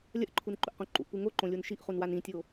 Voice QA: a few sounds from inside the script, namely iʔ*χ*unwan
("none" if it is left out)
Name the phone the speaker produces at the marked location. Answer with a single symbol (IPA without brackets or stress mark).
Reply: χ